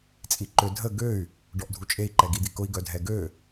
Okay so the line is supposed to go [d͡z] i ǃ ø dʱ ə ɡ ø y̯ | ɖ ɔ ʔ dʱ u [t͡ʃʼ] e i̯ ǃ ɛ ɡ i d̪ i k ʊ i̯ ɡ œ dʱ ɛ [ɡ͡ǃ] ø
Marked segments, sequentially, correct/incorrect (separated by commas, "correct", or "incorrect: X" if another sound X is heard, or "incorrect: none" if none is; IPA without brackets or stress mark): incorrect: t͡sʼ, correct, incorrect: ɡ